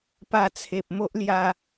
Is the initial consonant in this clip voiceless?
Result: yes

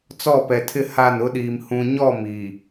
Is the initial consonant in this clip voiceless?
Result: yes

